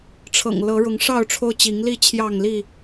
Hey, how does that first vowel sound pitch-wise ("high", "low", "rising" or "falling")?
low